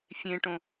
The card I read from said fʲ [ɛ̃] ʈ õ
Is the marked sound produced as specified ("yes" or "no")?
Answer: no